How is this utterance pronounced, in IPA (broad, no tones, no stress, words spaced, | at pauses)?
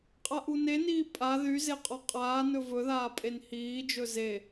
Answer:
qʼaʔuneniː pʼa ðyze qʼɔqʼaːnɵ vɵðaː pʼenhiːd͡ʒɵ ze